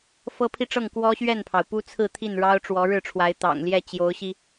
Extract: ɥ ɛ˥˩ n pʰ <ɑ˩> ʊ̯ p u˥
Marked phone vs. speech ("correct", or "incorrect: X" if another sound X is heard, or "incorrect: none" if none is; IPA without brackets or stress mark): correct